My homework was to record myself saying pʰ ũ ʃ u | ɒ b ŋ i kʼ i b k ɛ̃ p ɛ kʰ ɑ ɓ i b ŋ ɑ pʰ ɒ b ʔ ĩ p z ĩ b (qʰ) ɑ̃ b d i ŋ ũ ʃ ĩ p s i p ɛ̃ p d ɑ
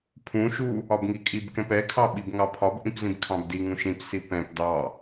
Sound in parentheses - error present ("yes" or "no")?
yes